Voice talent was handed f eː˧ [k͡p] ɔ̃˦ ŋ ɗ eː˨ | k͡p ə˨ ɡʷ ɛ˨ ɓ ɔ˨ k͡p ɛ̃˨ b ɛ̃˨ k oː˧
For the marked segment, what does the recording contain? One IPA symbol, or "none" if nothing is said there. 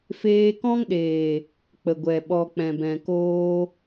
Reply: k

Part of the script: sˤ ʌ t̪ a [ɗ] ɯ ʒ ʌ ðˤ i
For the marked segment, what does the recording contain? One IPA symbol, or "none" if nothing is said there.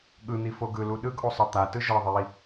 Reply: t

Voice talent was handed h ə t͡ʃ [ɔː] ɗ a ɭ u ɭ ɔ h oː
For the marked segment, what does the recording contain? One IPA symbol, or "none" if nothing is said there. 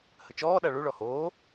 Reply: ɔː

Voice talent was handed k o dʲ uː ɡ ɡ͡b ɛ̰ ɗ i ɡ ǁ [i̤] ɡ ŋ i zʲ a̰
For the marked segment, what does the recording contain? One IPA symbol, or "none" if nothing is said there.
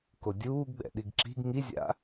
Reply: i̤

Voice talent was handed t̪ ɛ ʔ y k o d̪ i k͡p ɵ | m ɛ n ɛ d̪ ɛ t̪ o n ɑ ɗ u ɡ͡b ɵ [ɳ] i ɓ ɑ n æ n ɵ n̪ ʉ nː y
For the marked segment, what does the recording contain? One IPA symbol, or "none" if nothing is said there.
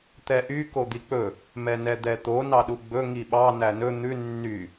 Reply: ŋ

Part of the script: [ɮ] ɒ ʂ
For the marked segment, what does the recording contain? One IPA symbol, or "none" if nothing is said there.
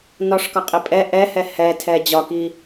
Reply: n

